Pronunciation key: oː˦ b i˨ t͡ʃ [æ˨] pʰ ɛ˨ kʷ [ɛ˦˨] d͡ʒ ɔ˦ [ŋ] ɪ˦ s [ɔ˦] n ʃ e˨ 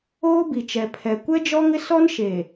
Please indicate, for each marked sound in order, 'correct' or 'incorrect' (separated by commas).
incorrect, incorrect, correct, correct